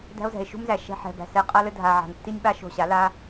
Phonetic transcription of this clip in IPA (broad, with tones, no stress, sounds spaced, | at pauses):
d æ̤˦ o̯ z ɛ̤˨ e̯ ʃ ṳ˦ m z æ˨ ʃ ɛ̤˧ ħ ɛ̤˨ b æ̤˨ s ɛ˧ qʼ a˧ l ɘ˧ dʱ a˨ ʕ a̤˨ n tː i˦ nʲ ɓ a˦ ʃ o̤˧ ɕ a˨˦ l a˦